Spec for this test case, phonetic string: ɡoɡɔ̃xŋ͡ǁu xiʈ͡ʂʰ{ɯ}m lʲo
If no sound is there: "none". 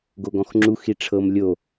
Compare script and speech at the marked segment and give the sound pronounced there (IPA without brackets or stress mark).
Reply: ɤ